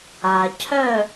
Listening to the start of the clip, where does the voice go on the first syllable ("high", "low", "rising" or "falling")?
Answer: low